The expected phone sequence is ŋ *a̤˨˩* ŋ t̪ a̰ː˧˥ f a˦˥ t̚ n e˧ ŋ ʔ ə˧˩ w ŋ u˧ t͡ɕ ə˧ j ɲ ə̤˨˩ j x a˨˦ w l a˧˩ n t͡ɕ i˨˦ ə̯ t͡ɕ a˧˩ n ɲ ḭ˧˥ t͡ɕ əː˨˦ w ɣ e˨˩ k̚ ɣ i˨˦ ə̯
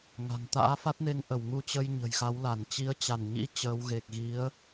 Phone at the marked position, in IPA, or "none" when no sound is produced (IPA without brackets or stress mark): a̤˨˩